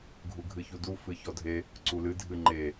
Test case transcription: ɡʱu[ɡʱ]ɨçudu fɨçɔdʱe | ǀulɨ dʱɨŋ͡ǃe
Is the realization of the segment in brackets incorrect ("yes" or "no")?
no